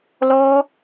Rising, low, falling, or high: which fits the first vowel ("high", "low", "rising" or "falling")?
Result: high